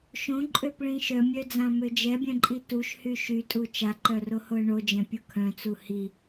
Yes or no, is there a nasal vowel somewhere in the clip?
yes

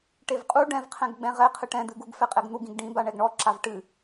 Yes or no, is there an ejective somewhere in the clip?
yes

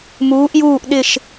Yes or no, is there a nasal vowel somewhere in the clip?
no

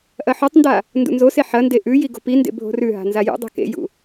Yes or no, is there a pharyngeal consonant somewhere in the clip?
yes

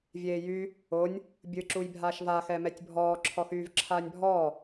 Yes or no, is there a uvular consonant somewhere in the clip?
no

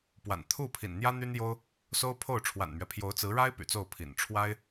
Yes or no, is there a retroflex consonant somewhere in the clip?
yes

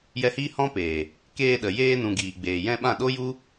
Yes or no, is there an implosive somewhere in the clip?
yes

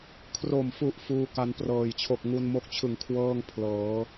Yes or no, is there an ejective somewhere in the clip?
no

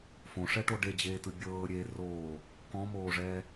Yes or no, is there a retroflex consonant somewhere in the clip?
yes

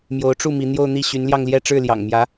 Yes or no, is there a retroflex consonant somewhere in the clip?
yes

